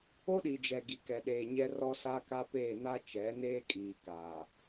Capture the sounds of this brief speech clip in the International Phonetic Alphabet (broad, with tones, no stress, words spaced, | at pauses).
o˦ɗi˨d͡ʒɛ˨ ɡi˨kɛ˨ɗeː˨ɲɛ˦ rɔ˦sa˦ka˦peː˦˨ na˦ t͡ʃɛ˨˦ neː˦kʼiː˨ kaː˨